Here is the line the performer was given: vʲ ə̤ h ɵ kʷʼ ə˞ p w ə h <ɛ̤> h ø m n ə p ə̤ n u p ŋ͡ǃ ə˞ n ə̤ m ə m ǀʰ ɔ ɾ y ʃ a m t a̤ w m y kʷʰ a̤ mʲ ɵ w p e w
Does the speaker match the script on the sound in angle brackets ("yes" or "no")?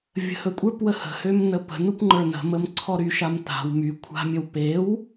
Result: no